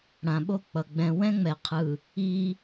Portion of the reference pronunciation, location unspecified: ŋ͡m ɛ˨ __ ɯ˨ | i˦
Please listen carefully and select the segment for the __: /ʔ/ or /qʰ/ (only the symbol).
qʰ